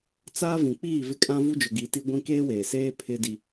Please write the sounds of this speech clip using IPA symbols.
t͡s aː˦ v ĩ˨ k͡p iː˦˨ v ɪ˦ kʼ ã˦ v u˦ d͡ʒ ʊ˨ ɡ i˨˦ t i˦ ɡʷ ĩ˦ k eː˦ w eː˨ s eː˦ pʰ ɪ˦ d i˦

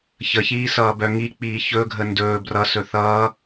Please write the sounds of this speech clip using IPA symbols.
ç ə ç iː s ʌː b œ ŋ i k͡p iː ç ɵ ɡʱ ə n d ɵː b r ʌ s ɵ θ ʌː

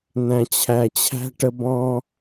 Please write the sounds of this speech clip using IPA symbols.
n̪ æ̃˨ t͡ɕʰ æ˨ t͡ɕʰ æ̤˦ ʈ ə˧ b ɔ̃˦

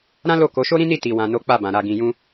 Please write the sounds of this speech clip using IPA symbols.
ɾ ã˦ l o˦˨ k o˨˦ ʃ o˦ ɾ ĩ˦ n i˦˨ t i˨ w ã˨ n o˨˦ k͡p a˦˨ b ã˨ ɾ a˨ ɡ ĩ˨ j ũ˧

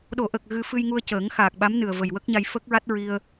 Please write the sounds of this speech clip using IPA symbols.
ɗ o˨˩˨ ʔ ə˨˩ k̚ ɣ ɨ˧ f ɨ˧ j ŋ u˧ ə̯ c əː˨˩˦ ŋ x aː˨˩ k̚ ɓ a˧˥ m n ɨ˨˩ ə̯ v ə˨˩ j w ə˦˥ k̚ ɲ a˧ j f ə˦˥ k̚ ɹ a˦˥ t̚ ɹ i˧ ə̯

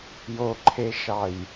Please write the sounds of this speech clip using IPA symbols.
j o ǃʰ e ʃ ɑ j

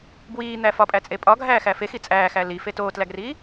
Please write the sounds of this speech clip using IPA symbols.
b w iː n̪ æ f ɒ pʼ æ t͡sʼ e pʼ ɒ ɡʱ æː x æ f e x i t͡sʼ æː x æ l i f e t oː t l æ ɡ r iː

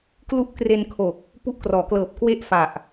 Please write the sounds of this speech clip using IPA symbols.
k l u˦˥ ʔ k r e˧ n kʰ o˨˩ k̚ | p u˦˥ ʔ k r ɔː˩˦ k l ɤː˨˩ p̚ k w e˥˩ ʔ f a˨˩ ʔ

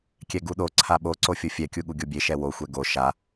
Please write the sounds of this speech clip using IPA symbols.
kʲ ɛ ɡ u ɗ o ǀʰ a ɓ o ǀ o fʲ o fʲ ɛ kʲ u ɠ u ɡʲ o bʲ e ʃ ɛ w o xʷ ɛ ɡ o ʃ a

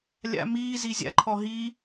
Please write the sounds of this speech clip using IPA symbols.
lʲ a̰ m iː z i zʲ a̰ ǃʰ ɔ ɦ i

